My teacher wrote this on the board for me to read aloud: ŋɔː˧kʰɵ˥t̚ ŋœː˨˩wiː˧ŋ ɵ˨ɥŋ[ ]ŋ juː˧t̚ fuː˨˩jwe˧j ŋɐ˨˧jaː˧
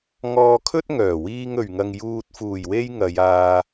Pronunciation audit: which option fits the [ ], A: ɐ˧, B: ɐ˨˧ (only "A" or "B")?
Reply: A